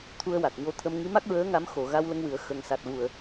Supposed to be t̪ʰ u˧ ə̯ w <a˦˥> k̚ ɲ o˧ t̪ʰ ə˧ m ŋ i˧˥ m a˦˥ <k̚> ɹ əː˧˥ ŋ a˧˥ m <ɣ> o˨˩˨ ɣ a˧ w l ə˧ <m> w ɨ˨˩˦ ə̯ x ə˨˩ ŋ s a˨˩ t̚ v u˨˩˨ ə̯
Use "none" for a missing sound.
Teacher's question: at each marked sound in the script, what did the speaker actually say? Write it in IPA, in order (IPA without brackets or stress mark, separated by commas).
a˨˩, k̚, x, ŋ